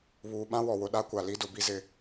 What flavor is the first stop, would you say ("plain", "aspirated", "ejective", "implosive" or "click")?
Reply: implosive